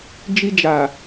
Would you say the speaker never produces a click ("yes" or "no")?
yes